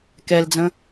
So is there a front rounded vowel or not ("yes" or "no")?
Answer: no